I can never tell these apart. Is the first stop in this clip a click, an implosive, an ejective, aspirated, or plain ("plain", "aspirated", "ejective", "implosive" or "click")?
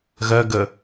plain